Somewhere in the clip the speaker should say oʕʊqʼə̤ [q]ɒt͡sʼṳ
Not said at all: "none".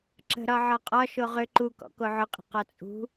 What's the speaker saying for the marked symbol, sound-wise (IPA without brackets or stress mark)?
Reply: q